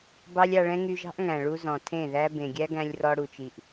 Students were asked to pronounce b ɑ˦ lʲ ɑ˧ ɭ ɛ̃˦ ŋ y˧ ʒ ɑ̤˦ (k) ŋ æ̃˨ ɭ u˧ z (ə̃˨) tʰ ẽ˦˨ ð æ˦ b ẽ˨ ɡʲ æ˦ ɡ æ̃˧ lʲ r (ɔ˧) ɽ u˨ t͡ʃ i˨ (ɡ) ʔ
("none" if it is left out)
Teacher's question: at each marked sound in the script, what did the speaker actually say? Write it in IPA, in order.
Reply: ʔ, ɔ̃˨, ɔ˧, none

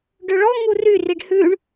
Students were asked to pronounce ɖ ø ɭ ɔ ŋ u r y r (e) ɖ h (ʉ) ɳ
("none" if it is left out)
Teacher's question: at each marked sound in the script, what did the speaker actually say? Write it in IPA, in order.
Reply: i, ʉ

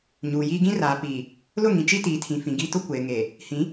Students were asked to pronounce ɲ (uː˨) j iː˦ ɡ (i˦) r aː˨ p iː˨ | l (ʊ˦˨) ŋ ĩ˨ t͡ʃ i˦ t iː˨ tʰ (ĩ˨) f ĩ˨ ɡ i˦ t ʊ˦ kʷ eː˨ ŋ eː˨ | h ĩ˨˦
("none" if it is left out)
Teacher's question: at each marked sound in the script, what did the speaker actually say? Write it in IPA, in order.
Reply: uː˨, ĩ˦, ʊ˦˨, ĩ˨

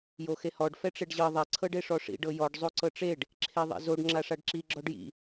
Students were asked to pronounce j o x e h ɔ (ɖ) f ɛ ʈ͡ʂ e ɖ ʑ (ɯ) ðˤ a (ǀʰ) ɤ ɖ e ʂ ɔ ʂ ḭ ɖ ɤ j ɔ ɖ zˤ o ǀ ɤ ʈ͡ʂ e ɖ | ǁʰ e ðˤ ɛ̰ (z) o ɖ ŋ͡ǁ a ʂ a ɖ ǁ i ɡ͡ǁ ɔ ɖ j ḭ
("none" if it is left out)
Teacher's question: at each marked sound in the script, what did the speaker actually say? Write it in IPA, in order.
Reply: ɖ, ɤ, ǀʰ, z

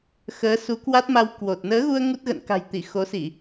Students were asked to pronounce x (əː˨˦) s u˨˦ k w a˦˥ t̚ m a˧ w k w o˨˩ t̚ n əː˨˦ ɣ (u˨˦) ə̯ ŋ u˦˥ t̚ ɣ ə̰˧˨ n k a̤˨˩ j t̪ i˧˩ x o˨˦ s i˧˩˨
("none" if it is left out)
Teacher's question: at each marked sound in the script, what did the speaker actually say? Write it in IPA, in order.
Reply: əː˨˦, u˧

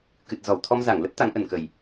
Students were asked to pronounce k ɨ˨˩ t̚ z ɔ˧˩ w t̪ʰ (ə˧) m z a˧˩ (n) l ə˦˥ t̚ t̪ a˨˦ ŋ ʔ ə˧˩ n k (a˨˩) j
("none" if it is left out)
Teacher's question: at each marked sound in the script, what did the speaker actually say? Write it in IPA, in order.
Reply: ɔ˧, ŋ, ə˨˩

